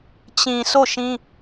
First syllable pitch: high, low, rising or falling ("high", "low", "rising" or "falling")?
low